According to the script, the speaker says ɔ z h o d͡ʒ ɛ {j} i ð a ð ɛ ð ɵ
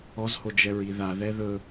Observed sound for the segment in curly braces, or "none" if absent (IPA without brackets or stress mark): ɹ